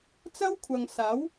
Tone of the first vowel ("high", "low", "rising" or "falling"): high